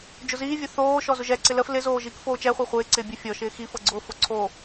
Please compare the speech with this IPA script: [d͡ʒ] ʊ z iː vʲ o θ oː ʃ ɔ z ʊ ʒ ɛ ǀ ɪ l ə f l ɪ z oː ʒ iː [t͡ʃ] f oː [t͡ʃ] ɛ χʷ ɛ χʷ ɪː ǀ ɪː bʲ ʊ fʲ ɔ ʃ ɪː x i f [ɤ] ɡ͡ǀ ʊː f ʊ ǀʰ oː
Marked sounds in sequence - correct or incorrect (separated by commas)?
correct, incorrect, correct, correct